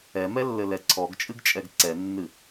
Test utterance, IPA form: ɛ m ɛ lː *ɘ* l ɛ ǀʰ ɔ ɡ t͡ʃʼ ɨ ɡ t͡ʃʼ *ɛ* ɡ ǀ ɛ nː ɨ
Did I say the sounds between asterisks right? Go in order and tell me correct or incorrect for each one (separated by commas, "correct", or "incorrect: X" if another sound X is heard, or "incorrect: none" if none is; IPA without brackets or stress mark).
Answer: correct, correct